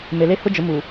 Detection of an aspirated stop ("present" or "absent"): absent